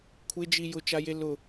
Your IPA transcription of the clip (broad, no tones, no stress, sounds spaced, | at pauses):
kʷʰ ɪ d͡ʒ i j ʊ t͡ʃ a j e l ʊ